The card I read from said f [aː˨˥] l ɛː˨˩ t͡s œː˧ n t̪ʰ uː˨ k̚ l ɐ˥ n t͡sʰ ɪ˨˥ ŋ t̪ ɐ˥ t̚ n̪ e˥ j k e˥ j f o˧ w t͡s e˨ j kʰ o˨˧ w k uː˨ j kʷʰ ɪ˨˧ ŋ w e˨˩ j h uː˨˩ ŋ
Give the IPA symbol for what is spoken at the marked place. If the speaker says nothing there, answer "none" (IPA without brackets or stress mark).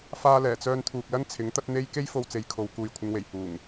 aː˧